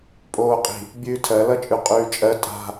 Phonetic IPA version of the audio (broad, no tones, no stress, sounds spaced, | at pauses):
pʼ oː qʼ i̤ | bʲ ʉː tʰ ɜ l ʌ t͡ʃʼ ʉ qʼ ʉː t͡ʃʼ ɜ tʼ a̤